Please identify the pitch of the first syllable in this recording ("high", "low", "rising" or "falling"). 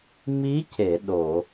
rising